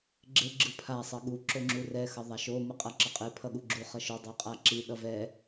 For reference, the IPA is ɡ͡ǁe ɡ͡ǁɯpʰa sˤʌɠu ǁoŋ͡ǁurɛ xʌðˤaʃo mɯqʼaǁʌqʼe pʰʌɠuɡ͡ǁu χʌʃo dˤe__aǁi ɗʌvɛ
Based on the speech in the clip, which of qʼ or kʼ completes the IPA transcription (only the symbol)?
qʼ